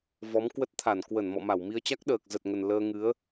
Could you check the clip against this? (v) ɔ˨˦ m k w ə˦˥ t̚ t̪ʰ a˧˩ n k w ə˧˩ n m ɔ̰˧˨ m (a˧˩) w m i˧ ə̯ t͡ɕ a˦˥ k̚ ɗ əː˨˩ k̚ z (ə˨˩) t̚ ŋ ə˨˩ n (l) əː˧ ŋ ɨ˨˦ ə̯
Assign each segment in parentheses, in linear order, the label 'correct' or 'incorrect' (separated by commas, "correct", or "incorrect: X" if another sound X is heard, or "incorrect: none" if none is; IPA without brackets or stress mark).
correct, correct, correct, correct